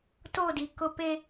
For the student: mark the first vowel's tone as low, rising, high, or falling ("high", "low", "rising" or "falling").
falling